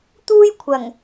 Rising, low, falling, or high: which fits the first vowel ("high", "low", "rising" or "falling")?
high